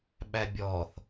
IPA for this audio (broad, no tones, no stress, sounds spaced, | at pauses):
ɓ æ bʲ ɔː θ